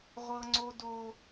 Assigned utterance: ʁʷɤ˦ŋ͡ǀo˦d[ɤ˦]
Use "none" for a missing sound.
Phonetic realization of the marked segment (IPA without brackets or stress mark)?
o˦